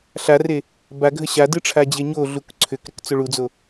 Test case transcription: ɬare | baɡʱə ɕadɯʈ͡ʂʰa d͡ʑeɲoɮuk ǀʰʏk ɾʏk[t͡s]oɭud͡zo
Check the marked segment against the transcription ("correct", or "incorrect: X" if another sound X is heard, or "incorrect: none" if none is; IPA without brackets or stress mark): correct